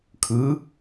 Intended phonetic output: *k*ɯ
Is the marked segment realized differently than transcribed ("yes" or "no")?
yes